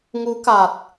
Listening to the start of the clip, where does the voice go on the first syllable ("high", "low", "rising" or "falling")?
rising